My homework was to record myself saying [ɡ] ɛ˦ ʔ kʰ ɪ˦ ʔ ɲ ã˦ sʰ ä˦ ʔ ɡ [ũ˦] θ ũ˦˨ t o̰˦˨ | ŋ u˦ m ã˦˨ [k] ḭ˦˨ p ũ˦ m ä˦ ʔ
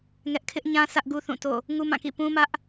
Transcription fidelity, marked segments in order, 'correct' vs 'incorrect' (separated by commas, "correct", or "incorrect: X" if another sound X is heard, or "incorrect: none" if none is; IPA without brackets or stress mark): incorrect: ŋ, incorrect: u˦, correct